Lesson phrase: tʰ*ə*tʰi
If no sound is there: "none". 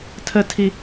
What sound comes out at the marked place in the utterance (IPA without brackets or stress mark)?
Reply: ə